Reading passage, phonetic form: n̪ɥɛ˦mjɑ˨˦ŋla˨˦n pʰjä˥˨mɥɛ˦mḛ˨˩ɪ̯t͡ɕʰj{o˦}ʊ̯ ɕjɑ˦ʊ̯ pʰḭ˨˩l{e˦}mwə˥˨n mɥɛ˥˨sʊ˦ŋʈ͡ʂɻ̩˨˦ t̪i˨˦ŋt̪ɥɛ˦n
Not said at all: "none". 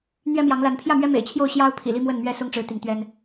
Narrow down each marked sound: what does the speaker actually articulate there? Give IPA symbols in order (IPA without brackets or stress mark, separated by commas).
o˥˨, i˦